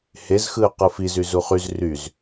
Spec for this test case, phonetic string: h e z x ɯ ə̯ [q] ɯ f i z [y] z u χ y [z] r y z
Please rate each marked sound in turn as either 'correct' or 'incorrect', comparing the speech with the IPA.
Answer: correct, correct, correct

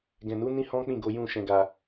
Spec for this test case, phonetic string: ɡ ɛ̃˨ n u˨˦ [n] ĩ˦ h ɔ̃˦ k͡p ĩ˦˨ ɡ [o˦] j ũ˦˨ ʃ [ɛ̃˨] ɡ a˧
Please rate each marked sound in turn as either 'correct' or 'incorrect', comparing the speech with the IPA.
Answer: correct, incorrect, incorrect

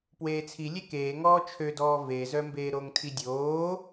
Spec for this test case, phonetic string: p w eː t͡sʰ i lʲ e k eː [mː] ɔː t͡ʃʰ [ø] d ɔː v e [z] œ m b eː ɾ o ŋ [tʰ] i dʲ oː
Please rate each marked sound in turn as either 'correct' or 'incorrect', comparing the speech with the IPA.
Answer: incorrect, correct, correct, correct

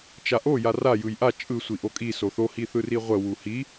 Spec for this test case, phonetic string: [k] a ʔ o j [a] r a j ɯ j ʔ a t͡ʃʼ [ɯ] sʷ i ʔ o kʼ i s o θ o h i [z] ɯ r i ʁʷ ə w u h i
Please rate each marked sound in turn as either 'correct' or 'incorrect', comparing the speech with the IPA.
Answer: incorrect, correct, correct, incorrect

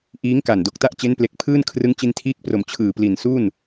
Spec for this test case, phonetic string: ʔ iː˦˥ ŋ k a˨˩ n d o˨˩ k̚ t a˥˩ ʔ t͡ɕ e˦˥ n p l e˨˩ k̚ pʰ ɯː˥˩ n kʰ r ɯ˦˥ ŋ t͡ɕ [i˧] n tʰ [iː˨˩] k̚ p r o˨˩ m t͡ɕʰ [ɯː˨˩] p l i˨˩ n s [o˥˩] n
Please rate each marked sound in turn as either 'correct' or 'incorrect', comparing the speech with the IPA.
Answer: correct, incorrect, correct, incorrect

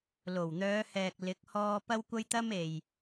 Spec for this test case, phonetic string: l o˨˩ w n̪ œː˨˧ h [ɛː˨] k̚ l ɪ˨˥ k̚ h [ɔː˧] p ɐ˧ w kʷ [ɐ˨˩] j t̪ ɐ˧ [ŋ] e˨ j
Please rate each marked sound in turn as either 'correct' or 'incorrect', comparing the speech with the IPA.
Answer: correct, correct, incorrect, incorrect

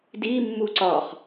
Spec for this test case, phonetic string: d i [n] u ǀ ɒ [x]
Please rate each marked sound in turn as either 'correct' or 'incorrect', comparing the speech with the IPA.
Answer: incorrect, incorrect

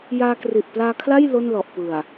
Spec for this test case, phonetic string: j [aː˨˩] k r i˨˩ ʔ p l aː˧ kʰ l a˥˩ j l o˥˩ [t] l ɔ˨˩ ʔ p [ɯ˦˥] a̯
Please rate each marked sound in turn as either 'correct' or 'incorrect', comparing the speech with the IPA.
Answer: incorrect, incorrect, incorrect

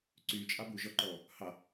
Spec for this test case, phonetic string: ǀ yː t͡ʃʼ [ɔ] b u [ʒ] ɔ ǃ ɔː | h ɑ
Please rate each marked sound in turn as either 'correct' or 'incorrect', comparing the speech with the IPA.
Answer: incorrect, correct

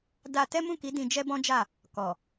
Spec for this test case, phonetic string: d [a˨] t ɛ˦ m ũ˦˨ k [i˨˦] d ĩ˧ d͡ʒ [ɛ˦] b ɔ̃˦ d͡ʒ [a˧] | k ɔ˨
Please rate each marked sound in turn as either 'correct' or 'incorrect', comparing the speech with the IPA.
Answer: incorrect, correct, correct, incorrect

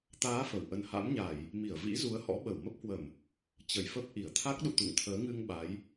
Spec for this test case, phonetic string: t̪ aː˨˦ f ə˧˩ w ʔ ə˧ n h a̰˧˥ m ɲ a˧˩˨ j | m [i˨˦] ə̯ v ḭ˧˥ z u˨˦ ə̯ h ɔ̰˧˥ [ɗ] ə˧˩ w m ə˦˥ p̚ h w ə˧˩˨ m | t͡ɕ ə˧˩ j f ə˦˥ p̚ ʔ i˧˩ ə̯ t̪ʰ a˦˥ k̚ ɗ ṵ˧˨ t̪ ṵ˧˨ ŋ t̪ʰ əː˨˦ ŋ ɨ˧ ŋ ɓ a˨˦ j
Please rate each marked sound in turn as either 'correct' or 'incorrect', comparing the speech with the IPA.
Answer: incorrect, incorrect

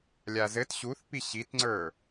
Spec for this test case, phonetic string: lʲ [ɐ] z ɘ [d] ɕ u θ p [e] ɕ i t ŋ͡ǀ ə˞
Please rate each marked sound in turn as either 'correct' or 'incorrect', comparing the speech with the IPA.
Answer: incorrect, incorrect, incorrect

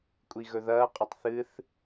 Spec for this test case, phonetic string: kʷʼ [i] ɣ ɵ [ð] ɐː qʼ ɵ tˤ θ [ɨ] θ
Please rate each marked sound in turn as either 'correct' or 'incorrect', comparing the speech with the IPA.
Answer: correct, correct, correct

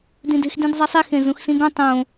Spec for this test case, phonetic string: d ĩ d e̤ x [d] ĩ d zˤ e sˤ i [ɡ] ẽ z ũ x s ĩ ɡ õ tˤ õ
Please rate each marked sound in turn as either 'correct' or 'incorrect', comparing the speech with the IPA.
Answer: correct, incorrect

